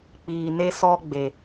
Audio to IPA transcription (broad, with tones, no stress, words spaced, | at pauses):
k͡piː˨ne˧sɔ˧ ɡ͡be˨